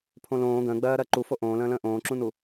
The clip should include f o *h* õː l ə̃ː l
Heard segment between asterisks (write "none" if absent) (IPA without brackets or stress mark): ʔ